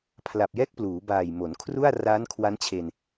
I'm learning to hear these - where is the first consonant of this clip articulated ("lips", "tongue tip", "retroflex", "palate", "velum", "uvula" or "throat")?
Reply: lips